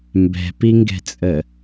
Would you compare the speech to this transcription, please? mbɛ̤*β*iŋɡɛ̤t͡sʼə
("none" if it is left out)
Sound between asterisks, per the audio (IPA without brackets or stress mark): p